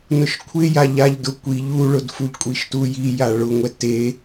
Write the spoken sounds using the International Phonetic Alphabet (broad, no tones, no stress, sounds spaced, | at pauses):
n ʊ ʃ kʷʰ ɪ j a ʎ a ʎ d ʊ kʷ i ʎ u ɭ ʊ d f u ʎ kʷʼ i ʃ t u j i j a ɭ ʊ ŋʷ ɛ t e